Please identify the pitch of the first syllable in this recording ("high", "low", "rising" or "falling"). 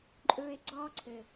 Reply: low